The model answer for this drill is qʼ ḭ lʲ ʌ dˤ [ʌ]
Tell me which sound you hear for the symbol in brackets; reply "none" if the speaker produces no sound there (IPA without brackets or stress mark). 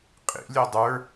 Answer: ə˞